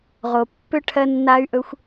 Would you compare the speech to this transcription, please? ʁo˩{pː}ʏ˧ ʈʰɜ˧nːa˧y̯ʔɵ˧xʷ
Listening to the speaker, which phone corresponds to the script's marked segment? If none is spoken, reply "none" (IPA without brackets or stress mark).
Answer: pː